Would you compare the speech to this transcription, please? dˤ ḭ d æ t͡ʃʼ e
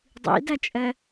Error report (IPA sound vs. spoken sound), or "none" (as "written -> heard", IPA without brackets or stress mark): e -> ɛ